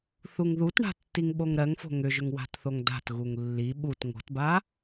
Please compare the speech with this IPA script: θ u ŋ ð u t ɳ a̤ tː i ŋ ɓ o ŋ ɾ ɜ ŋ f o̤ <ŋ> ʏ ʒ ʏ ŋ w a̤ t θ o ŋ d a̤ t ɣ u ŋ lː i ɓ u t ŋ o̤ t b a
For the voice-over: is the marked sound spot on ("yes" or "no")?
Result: yes